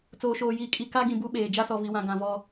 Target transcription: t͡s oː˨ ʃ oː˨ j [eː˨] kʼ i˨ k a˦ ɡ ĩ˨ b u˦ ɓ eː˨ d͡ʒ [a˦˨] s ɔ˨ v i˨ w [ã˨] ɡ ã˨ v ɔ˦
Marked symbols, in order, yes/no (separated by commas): no, no, yes